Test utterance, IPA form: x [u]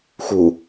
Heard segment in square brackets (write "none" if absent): u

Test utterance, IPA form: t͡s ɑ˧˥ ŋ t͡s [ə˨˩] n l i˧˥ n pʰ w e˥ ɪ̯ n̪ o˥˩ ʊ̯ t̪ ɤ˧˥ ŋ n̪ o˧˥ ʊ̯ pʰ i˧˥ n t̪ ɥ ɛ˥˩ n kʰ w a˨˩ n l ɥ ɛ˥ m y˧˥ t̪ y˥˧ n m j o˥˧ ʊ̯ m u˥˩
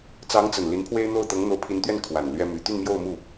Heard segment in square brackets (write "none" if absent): ə˨˩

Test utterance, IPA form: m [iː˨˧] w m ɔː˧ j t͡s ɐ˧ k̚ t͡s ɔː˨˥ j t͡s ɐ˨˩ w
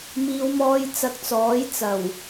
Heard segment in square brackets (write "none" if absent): iː˨˧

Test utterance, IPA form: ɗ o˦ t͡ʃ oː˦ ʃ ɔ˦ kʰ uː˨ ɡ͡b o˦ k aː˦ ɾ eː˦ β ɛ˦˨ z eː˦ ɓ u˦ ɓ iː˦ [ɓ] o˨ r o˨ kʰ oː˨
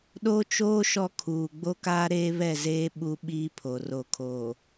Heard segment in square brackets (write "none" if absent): pʰ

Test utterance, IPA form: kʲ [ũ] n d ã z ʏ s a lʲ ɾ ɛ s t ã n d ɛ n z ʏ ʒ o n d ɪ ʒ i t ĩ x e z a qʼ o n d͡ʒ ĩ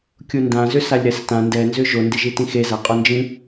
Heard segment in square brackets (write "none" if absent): u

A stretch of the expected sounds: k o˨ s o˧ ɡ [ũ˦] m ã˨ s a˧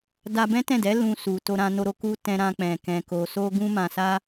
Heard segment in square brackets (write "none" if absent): ũ˧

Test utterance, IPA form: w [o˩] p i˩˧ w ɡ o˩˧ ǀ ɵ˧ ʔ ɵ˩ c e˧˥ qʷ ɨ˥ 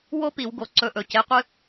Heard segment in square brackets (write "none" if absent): o˥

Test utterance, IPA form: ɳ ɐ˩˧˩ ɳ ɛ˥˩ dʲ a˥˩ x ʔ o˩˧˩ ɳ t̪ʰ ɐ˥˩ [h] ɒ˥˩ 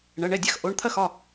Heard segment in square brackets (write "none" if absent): x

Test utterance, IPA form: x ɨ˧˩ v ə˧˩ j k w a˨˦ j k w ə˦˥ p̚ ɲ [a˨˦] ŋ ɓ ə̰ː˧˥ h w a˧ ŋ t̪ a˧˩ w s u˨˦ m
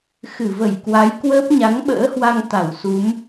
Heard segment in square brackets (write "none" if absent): a˨˦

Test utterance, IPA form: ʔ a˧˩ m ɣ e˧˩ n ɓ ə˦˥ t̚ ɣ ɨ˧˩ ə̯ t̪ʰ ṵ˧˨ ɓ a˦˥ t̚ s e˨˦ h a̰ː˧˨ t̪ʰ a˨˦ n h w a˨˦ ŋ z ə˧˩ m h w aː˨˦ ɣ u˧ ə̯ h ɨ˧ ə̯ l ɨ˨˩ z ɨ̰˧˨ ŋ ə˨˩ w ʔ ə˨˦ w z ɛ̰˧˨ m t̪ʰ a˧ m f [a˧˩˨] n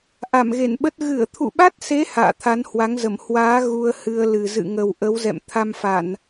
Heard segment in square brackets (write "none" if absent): a˧˩˨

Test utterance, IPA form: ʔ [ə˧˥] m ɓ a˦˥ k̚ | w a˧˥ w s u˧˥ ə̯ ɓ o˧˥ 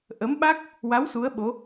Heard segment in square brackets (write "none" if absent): ə˧˥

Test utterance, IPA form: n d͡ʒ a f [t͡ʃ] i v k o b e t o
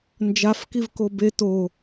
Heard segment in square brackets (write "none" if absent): k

